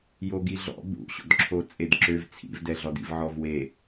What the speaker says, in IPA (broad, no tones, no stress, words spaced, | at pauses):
joɡiɮɔ̰ bṵɕɔ̰d ǁʰot͡sʼedǁøv t͡sʰḭvdɛɮɔdḭv ʕɔvwe